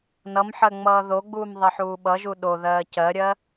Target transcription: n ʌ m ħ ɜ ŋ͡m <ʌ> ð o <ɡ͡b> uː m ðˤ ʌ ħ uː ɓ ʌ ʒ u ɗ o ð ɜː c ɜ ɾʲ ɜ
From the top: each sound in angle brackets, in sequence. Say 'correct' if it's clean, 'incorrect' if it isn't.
incorrect, correct

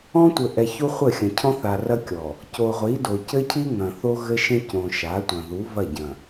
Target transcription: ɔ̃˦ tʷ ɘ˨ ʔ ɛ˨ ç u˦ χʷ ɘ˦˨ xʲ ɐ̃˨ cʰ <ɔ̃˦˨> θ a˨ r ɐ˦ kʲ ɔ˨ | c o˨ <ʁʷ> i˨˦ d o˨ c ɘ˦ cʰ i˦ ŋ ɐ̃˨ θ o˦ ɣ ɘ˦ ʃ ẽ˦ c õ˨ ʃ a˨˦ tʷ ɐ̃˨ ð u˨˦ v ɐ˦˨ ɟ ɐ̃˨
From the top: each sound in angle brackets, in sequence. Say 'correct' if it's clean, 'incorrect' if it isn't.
incorrect, correct

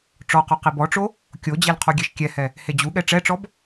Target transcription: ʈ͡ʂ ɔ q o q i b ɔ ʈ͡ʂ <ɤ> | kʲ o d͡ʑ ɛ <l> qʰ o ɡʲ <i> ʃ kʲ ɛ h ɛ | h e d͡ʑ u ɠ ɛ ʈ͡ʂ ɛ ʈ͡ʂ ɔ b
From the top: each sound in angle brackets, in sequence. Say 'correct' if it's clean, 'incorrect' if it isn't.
incorrect, correct, incorrect

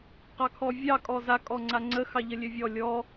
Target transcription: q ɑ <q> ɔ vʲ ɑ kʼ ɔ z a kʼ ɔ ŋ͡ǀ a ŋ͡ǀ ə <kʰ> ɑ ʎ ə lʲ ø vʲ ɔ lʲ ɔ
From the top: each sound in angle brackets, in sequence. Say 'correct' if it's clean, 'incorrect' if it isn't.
incorrect, incorrect

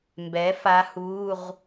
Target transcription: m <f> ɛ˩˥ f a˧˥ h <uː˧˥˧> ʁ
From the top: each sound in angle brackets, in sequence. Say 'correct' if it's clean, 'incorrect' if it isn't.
incorrect, correct

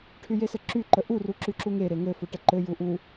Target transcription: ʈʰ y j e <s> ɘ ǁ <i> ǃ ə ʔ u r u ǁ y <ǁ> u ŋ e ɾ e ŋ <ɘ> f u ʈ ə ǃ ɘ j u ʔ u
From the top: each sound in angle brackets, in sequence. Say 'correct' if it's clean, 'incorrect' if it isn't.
correct, incorrect, correct, correct

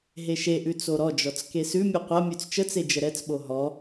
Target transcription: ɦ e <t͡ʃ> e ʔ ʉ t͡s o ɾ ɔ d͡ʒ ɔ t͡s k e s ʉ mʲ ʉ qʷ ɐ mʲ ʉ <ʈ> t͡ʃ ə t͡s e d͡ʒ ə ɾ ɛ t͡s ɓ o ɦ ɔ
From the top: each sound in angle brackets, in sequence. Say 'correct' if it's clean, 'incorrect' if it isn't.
incorrect, incorrect

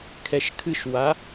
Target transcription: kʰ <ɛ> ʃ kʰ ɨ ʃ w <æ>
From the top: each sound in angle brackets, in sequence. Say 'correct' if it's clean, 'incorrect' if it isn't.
correct, incorrect

